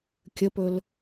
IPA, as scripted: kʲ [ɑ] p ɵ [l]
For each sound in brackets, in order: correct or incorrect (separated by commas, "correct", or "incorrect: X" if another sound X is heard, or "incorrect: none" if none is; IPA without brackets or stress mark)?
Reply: incorrect: ə, correct